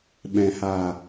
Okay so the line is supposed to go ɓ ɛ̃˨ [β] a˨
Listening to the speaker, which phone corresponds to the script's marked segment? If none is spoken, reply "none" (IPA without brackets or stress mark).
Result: h